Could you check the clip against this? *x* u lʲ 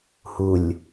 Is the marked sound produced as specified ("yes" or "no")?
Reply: no